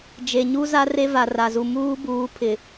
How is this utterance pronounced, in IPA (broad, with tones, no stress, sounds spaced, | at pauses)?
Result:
d͡ʒ e˨ ɲ u˦ z a˦ r e˦ v a˨ r a˨ z u˨ m uː˦ b uː˨˦ pʰ ɪ˨